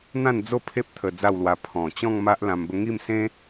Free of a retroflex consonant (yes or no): yes